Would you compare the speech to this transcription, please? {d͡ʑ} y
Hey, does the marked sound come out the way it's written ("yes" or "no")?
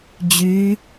yes